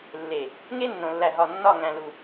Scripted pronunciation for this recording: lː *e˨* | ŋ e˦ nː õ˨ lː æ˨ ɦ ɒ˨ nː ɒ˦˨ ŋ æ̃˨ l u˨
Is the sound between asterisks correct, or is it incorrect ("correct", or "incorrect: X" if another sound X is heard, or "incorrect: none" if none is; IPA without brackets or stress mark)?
correct